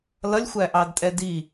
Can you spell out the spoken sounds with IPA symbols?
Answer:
l ʌ lʲ xʷ æ ʔ ɑ d tʼ ɛ d i

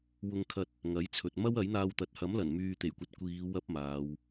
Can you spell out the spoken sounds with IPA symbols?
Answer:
w ʊ˧ ŋ kʰ ɐ˧ t̚ | ŋ ɐ˨˥ j t͡sʰ ɵ˨ t̚ m ɐ˥ w ɐ˨˥ j n̪ aː˧ w t̪ ɐ˨ t̚ h ɐ˨˥ m l ɐ˨˩ n m yː˨ t̪ e˨˩ j kʷ ɐ˨˥ t̚ kʷ iː˨˧ w ɐ˥ p̚ m aː˨˧ w

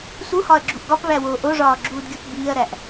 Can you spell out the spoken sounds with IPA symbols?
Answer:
s u h ɒ ɐ̯ ɡ͡ǁ u ʔ ɡ ɒ p β æ w oː ʔ o ʐ ɒː ɡ͡ǁ uː d ɡʲ u p b iː ɐ̯ ɾ æ ʔ

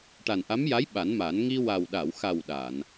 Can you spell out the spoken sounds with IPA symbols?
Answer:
ʈ a˨˩ n ʔ a˧˥ m j a˧˥ j ɓ a˨˩˦ n m a˨˩˦ n ŋ i˧ w a˨˩ w ɗ a˨˩˨ w x a˨˩ w ɗ a˨˩˨ n

